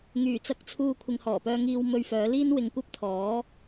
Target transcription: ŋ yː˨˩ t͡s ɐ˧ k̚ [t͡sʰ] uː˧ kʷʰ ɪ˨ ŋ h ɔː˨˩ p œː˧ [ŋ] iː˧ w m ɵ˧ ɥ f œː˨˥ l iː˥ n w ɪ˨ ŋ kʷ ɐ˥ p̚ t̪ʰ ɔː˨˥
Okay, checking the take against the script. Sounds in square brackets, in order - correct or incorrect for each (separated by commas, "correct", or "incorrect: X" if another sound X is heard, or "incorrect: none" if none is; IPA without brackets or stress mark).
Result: correct, correct